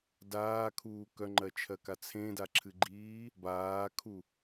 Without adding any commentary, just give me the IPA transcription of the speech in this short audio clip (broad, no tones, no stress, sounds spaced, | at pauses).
d aː kʰ uː k œ ŋ͡ǃ ɜ t͡ʃʰ ɜ k a t͡sʰ ẽ d a ǁʰ ɨ ɡ͡ǃ iː | b aː kʰ u